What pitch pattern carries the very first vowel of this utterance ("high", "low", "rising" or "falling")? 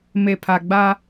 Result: low